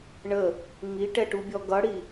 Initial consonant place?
retroflex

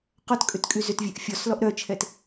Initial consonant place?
uvular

